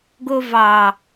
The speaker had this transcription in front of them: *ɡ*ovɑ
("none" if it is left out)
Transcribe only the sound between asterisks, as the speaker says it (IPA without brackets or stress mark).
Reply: ɡ